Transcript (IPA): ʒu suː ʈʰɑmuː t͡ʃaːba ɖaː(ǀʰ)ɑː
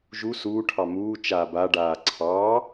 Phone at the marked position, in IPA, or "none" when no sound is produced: ǀʰ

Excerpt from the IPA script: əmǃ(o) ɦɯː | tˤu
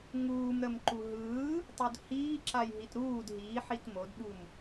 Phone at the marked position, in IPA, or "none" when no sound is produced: u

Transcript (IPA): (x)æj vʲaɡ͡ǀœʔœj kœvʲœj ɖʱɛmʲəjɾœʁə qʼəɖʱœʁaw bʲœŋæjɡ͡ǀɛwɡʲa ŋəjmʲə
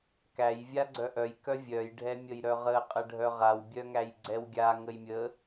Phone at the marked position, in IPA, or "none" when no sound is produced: k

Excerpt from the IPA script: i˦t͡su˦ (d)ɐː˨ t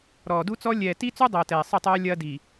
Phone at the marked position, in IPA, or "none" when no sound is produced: dˤ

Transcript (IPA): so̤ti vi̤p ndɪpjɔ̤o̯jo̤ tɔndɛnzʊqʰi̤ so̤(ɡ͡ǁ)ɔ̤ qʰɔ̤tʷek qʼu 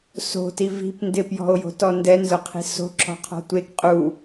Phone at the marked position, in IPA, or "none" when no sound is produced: ǁ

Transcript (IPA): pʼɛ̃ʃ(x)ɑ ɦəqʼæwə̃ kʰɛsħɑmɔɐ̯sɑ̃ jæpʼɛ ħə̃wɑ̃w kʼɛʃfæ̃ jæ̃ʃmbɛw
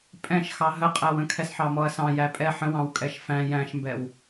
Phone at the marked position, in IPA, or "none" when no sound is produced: x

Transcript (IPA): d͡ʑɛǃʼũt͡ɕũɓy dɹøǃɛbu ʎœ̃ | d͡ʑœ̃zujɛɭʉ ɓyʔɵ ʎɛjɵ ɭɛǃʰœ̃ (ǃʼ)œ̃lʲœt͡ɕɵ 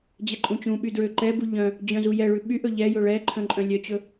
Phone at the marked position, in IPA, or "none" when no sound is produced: ǃʼ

